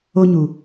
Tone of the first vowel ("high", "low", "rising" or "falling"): high